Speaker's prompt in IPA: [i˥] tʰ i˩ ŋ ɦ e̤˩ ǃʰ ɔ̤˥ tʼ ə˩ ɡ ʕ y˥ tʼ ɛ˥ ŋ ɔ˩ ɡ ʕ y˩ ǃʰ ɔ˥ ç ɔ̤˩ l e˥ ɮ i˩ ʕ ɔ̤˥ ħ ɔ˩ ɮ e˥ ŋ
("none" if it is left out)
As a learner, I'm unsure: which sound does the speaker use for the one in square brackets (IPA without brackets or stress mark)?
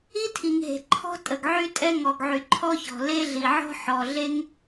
i˥